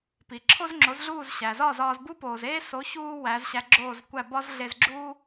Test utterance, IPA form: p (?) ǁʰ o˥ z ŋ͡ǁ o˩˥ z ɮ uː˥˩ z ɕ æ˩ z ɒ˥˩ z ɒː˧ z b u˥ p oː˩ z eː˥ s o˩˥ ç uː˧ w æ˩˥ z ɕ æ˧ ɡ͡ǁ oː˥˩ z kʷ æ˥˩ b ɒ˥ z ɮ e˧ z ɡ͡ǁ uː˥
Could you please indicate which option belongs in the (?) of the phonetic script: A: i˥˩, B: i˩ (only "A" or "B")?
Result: B